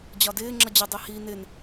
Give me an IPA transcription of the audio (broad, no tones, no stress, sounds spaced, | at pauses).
d͡ʑ ɒ d ɪː ŋ͡ǁ ʌ d͡ʑ ʊ dˤ i h i n ɪ n